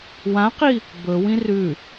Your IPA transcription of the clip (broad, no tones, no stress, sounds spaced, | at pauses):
w ã q i | b ɵ w ĩ r ʉ